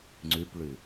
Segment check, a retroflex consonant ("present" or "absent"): present